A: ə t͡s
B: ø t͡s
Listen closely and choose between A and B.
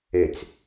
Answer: B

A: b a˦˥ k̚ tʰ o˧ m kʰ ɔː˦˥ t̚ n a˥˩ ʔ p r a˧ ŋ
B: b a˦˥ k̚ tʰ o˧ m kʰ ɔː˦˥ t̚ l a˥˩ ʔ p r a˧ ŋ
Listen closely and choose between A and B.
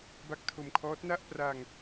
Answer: A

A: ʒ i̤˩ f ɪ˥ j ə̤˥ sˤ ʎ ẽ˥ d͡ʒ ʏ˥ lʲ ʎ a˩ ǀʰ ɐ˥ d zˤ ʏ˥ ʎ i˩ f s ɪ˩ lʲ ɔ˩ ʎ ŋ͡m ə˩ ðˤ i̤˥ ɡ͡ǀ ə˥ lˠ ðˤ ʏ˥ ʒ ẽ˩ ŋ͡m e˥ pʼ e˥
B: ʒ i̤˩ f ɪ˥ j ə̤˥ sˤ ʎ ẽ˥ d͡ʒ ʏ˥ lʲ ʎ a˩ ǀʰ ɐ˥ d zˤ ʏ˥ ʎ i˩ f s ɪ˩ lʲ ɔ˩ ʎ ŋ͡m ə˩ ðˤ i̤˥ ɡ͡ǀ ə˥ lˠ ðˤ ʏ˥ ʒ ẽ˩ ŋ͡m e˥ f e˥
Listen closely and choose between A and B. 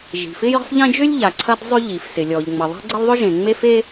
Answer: B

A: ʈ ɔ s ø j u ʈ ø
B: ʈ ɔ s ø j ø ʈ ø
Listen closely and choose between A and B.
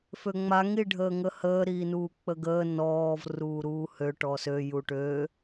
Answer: A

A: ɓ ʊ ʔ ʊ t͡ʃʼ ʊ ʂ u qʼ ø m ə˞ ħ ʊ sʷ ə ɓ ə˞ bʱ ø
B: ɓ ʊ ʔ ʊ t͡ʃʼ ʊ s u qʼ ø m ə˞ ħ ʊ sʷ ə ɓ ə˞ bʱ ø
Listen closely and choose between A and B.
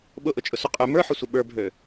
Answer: B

